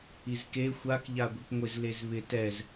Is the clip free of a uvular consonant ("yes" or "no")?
yes